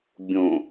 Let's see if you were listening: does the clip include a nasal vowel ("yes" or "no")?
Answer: yes